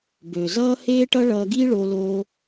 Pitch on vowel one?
low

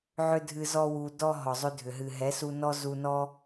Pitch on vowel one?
high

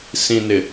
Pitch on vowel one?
low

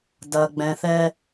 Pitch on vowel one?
low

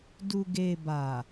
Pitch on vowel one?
low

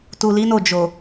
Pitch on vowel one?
low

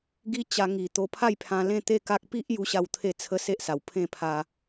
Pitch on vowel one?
high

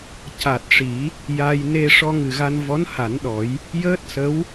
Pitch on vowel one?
low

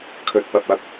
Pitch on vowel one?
low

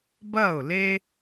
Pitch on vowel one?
falling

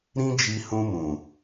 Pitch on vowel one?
high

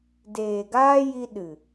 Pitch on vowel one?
low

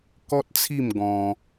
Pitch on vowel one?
high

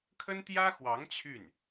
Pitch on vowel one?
high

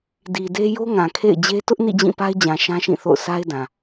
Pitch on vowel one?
low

